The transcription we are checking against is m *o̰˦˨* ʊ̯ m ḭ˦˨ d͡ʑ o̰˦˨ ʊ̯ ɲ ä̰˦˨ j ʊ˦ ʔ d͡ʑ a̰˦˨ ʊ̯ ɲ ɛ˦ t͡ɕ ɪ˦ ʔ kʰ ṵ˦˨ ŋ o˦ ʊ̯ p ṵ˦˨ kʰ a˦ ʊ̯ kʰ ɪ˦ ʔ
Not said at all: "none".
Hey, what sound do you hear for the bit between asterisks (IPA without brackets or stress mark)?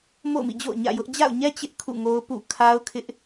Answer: o̰˦˨